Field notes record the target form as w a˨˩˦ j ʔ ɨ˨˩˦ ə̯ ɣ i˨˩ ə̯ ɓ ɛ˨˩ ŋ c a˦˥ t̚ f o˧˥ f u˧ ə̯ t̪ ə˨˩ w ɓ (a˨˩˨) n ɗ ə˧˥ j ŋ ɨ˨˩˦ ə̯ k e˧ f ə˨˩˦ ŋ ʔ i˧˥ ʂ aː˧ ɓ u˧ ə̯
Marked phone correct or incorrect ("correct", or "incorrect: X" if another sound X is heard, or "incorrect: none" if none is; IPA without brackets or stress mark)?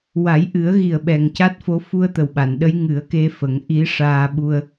correct